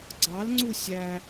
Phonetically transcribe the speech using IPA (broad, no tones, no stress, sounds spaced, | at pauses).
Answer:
ɡ͡ǀ ɑ l ŋ͡ǀ u sʲ æ